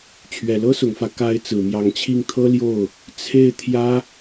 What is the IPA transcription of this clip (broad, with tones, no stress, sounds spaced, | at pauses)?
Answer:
t͡ɕʰ ɥ ɛ˨˩ l ɤ˥ s ʊ˨˩ ŋ f ä˦ k a˧˥ ɪ̯ t͡s ɹ̩˨˩ m j ɑ˧˥ ŋ t͡ɕʰ i˥˩ ŋ t̪ʰ ɤ˥ l j o˥˩ ʊ̯ | t͡sʰ e˥˩ ɪ̯ t̪ʰ j ä˥